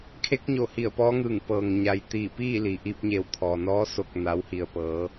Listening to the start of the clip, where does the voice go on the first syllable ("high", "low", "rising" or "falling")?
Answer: rising